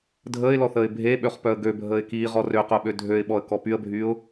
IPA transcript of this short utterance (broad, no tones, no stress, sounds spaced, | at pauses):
dʱ əː ɪ̯ l ɔ θ əː ɪ̯ bʱ e ɓ ø χ p œ ə̯ ɡ ø bʱ əː ɪ̯ k iː ʁ ɔ r ø q œ ɓ ø dʱ ø ɪ̯ ɓ ɔ ə̯ k ɔ p y ə̯ bʱ yː ʊ̯